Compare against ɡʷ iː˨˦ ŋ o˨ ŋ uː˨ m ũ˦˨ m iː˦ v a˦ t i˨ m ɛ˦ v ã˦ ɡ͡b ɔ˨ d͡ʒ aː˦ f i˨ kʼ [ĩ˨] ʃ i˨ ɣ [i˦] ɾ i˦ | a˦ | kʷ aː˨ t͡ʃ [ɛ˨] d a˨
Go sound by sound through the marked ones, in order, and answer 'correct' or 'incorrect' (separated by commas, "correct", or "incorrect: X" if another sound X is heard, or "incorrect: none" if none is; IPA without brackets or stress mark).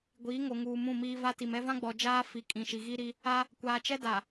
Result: correct, correct, incorrect: ɛ˦